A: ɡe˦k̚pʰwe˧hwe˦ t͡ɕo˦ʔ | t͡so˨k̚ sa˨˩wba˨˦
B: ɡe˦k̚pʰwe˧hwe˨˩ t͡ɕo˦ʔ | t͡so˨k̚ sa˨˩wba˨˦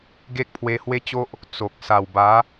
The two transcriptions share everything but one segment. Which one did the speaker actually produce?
A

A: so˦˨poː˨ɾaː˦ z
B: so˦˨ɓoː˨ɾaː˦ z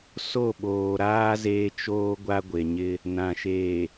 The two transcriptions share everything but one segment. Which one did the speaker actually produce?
B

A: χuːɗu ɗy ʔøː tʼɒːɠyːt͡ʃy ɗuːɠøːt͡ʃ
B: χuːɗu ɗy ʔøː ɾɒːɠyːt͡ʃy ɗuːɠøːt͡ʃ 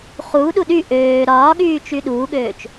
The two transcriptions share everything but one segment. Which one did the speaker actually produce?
B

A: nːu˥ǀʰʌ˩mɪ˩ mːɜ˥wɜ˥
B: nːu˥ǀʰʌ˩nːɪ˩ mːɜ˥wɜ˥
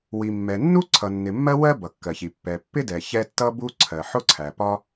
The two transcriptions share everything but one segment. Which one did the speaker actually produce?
B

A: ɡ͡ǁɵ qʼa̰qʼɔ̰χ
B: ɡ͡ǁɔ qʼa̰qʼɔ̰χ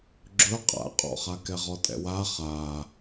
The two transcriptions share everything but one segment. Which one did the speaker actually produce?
A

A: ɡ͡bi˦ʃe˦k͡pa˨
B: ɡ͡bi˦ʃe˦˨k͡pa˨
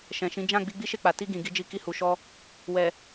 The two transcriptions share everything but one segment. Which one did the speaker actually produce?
B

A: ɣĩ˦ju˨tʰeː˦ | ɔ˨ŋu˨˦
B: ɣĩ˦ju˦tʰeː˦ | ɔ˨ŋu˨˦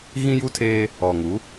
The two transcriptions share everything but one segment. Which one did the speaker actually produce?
B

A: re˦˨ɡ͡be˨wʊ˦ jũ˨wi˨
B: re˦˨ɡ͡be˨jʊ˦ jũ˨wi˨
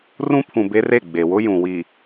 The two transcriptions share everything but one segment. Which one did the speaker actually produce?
A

